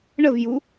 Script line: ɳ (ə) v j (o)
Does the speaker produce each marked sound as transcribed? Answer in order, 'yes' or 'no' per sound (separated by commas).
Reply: yes, no